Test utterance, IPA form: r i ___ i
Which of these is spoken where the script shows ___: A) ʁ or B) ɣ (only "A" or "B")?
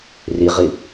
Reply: A